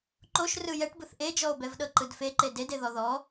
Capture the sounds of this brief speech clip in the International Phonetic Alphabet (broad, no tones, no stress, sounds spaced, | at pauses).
ǃ o ʃ r ɯ j ɛ ʈ b ɯ θ ʔ e d͡ʒ ɔ o̯ b ɛ v ɗ ɤ ǃ ɯ d f e ǃ e d e d e ð ɔ ð ɔ